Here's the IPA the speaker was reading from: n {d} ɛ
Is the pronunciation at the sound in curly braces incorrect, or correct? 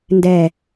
correct